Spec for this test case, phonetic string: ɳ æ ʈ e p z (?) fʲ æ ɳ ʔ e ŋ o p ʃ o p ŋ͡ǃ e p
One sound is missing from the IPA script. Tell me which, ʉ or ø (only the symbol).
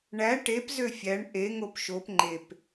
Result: ø